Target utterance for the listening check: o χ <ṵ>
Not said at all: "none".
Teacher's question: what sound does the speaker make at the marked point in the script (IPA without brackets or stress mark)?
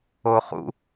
ṵ